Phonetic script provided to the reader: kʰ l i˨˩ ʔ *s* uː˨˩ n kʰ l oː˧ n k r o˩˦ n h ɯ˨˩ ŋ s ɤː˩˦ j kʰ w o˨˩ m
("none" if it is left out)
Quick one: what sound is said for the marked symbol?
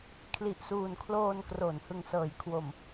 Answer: s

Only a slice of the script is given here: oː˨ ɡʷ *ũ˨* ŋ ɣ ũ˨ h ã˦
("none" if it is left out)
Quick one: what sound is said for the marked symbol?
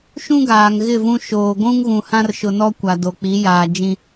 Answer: ũ˦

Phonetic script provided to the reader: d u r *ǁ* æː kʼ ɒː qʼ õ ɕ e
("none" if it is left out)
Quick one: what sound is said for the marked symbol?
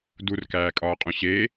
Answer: k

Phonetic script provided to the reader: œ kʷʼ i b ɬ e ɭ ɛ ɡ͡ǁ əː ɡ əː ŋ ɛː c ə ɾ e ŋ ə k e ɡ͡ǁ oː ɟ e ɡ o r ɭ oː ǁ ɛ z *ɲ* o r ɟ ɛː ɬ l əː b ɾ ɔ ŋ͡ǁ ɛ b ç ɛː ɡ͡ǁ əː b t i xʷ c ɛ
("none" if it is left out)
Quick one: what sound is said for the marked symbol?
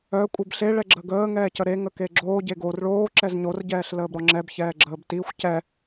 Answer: ɲ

